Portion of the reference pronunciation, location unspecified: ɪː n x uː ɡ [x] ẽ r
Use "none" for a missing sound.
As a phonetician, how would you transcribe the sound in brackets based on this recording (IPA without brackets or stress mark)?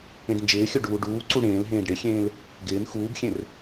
xʲ